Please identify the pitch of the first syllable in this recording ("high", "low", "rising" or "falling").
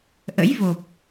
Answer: rising